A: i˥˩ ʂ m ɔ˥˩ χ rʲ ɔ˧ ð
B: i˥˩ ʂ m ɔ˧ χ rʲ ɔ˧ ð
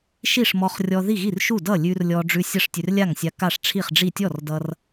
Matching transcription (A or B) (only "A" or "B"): B